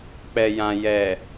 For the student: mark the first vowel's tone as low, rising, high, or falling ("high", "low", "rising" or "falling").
low